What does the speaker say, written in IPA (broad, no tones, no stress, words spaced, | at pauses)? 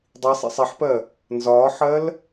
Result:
dˤi sˤɛ̰sˤɛħpɜ | nzɒːħɜl